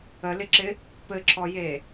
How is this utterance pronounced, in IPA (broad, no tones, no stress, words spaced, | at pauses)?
əlɪǁɪ | pɘǁʰɔje